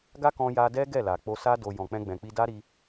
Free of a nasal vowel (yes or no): no